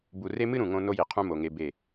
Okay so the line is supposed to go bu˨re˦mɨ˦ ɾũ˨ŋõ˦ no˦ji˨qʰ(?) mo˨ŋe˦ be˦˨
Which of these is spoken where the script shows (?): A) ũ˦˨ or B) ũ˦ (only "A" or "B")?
B